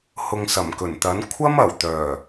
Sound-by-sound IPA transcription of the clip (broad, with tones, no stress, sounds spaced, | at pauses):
h ʊ˨ ŋ s ɐ˨˩ m k ɵ˨˩ n t̪ ɐ˨˥ n kʷʰ ɐ˥ m ɐ˨˩ w t̪ œː˨˩